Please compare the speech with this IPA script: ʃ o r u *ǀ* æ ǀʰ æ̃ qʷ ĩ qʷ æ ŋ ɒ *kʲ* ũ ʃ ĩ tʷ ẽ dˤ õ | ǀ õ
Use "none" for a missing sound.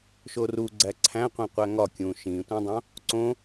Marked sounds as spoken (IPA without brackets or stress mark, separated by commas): ɡ͡ǀ, kʲ